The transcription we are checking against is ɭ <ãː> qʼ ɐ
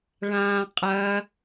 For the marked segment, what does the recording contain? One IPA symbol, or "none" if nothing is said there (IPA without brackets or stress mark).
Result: ãː